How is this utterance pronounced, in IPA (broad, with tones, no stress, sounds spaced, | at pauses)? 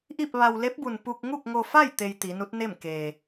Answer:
ʔ i˥˨ p̚ ʋ a˧ w l e˧˥ p̚ b u˩ n p u˧ k̚ ŋ u˥˨ k̚ ŋ o˧ f a˥˨ j t̪ e˧ j t̪ i˩˧ n u˧˥ t̚ n e˥˨ m k eː˩